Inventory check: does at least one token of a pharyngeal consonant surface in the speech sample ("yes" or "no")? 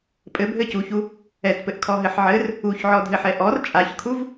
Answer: yes